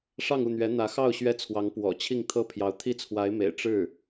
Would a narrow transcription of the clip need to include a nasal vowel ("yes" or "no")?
no